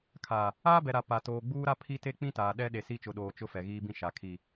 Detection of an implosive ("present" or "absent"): present